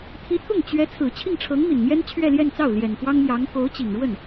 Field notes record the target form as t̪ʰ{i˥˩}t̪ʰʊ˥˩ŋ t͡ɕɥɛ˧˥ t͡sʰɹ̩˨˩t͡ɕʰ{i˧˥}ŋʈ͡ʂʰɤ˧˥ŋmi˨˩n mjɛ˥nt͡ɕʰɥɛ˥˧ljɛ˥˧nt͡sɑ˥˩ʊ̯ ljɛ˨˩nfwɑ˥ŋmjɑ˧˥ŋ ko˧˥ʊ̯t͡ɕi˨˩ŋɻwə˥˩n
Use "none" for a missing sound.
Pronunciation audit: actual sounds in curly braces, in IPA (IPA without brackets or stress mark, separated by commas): i˧˥, i˥˩